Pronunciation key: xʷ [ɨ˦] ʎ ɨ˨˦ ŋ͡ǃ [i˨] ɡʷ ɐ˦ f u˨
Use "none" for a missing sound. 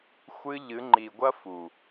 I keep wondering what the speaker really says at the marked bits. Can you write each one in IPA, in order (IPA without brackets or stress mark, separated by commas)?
ɨ˧, i˨